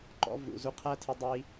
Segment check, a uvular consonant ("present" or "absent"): present